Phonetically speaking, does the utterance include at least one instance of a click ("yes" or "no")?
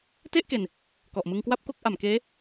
no